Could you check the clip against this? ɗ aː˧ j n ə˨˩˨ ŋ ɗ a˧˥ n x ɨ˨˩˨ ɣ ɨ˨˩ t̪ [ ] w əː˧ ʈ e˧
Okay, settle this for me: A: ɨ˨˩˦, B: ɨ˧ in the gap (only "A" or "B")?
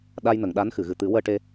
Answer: A